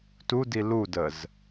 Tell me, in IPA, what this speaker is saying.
t u d i l u d ə z

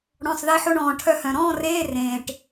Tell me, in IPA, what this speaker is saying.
ɽ ɔ̃˩˧˩ sˤ ð e˧ ħ o˧ ɳ ɔ̃ː˩ ʈʰ œ˧ h œ̃˩ ɾ ɔ̃ː˥˧ r eː˧˥˧ r ẽː˩ ʈ

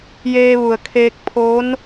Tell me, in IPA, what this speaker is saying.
j eː˧ ʋ u˩ ə̯ kʰ eː˧ k̚ pʰ o˧˥ n

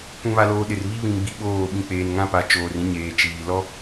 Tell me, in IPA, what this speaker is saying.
k ũ˨ β a˨ l oː˨ ɗ ɪ˨ r β i˦ β ĩ˨ m ɡ͡b i˨ ɓ oː˦˨ ɓ ĩ˨ k͡p eː˨ n ŋ ã˦ p a˨ t͡ʃ oː˨ r ĩ˦ ɲ eː˨ t͡ʃ iː˨ l ɔ˦

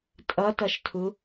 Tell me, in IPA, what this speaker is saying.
tʼ ʌ t ʌ ʃ tʰ u

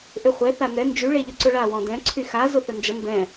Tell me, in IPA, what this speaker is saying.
ʔ ʏ χʷ ɛ θ a n ɛ n d͡ʒ y ɭ e ʎ ɔ ǀ ʊ ɭ a w ɔ̃ d ɛ̃ ǀʰ y x a z ʊ θ ə n d͡ʒ ə m b ɛ̃

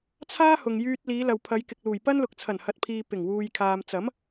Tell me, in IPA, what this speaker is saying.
t͡sʰ aː˥ h ʊ˨ ŋ j yː˧ t̚ l iː˨˧ l ɐ˨ w pʰ ɐ˨˧ j k ɪ˨ k̚ l uː˨˩ j p ɐ˥ n l ʊ˨ k̚ t͡sʰ ɐ˨˩ n h ɐ˨ t̚ pʰ iː˨ p ɪ˨˩ ŋ w uː˨ j kʰ aː˨ m t͡s ɐ˨˥ m

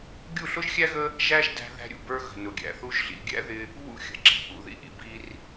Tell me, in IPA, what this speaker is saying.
ɡʲ u˦˨ ɬ ʊ˦ ʒ xʲ æ˦ ɣ ə˦ | ʒ æ˦ ʒ d æ̤˧ ð æ̤˧ ɾʲ ṵ˨ b ə˞˧ ɣ ə̤˨ n ʊ˨ ɡʲ æ̰˨ θ u˧ ʒ ɮ ḭ˨ ɡʲ æ̰˦ ð ɪ˧ | β ṵ˦˨ xʲ ə̤˨ ǁ i̤˧ ʔ ṵ˨ ð ḭ˧ ʔ ḭ˨ b i˧ r

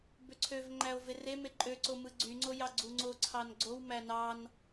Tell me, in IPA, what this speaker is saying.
b ø ǀʰ ø v ŋ͡ǃ æ o̯ v e r e m e ǃʼ ø ǀ o m ɯ ɡ͡ǀ y ŋ͡ǀ o j ɑ ɡ͡ǀ u ŋ͡ǀ o ǀʰ ɑ n ɡ͡ǀ o w m æ n ɑ n

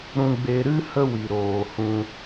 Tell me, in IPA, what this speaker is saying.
ɾ ũ˧ ɡ͡b e˧ ɾ ɨ˦ h ə˦ w i˨ ɾ oː˨ h ũ˧

